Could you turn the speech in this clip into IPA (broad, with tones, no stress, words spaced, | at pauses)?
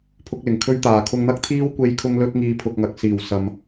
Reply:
pʰʊ˥k̚ lɪ˨˩ŋkʰɵ˥ɥt̪aː˨ kʰʊ˧ŋn̪ɐ˥k̚t̪ʰiː˥w kʷe˧jkʰʊ˧ŋ lɵ˥t̚ŋiː˧ pʰʊ˧k̚ŋɐ˨k̚ siː˨˩w sɐ˨m